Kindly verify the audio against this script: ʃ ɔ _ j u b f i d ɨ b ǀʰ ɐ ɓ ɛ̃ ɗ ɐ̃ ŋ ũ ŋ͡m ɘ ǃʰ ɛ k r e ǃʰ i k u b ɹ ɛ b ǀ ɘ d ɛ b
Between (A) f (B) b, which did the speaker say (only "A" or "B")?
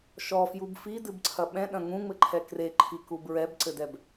A